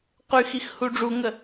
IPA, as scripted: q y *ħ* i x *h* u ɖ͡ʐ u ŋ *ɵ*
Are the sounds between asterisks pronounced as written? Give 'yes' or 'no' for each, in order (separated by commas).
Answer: no, yes, no